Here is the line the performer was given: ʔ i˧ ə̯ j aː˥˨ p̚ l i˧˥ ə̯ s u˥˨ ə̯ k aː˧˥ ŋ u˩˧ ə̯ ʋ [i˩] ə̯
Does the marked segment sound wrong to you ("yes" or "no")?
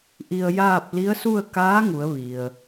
no